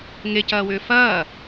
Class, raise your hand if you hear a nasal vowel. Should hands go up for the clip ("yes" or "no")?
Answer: no